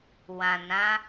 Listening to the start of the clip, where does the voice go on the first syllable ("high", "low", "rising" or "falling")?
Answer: low